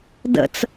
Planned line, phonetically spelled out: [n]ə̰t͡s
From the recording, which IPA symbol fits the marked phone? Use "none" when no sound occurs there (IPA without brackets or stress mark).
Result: d